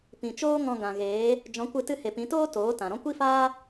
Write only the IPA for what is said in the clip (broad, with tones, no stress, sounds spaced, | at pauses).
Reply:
p ĩ˨ t͡ʃ oː˦ ŋ ɔ̃˧ ɡ ã˨ ɣ eː˨˦ | d͡ʒ ɔ̃˨˦ kʷ ɨ˧ t ɨ˧ h e˨ p ĩ˨˦ t oː˦ t oː˨˦ t ã˨ ɾ ɔ̃˦ kʷ i˦ f aː˦